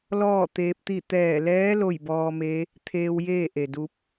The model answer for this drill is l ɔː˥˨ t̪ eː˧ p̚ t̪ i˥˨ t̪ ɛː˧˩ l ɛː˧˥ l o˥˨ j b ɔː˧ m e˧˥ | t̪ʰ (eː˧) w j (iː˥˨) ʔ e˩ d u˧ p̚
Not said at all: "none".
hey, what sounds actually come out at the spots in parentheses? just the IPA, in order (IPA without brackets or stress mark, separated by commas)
eː˧, eː˥˨